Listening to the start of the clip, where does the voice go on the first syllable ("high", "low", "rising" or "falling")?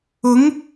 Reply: rising